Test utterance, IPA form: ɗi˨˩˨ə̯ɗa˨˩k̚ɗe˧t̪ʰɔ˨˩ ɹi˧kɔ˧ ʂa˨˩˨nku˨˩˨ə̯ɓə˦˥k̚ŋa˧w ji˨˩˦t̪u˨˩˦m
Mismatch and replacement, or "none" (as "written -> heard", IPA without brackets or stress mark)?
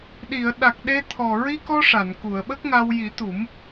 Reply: none